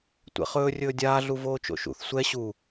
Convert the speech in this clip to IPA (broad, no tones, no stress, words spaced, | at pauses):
tʷɛ̰χɵː rʲɵːdʲaː ɮuvoːt͡ʃo̰ʃṵθ sʷɛ ɕu